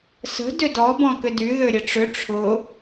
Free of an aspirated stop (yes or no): no